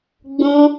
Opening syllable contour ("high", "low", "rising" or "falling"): high